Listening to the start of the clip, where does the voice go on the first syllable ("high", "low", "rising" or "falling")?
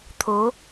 rising